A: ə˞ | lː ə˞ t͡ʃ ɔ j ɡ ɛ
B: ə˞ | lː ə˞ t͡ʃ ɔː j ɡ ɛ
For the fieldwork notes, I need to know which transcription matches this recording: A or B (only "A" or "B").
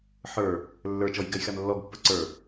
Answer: A